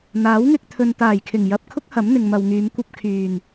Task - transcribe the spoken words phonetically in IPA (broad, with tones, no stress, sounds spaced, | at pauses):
n̪ aː˨˥ w ŋ ɪ˧ k̚ t̪ʰ ɵ˨ n t̪ aː˨˩ j kʰ ɪ˨˩ ŋ j ɐ˨ p̚ kʰ ʊ˥ k̚ h ɐ˨˥ m n̪ ɪ˨ ŋ m ɐ˨ w ŋ yː˨˧ m kʷ ɐ˧ p̚ kʰ yː˨˩ n